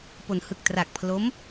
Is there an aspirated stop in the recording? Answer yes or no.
yes